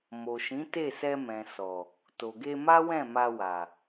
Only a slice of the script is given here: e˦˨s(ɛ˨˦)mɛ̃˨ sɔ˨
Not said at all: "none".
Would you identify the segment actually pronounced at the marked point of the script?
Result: ɛ˧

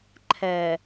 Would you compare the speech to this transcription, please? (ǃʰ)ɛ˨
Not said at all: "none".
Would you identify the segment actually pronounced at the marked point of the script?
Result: ǃʰ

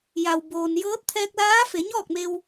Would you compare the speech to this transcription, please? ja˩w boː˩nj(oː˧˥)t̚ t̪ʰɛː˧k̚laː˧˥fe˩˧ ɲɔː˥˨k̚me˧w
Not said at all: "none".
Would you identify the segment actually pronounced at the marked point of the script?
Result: ɤː˧˥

